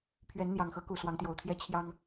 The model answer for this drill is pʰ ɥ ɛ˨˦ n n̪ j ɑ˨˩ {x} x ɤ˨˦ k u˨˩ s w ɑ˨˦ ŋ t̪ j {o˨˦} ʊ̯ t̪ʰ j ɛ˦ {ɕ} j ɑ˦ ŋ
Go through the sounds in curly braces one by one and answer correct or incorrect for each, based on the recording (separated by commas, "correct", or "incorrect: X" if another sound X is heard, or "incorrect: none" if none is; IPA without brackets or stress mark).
incorrect: ŋ, incorrect: o˨˩, incorrect: t͡ɕʰ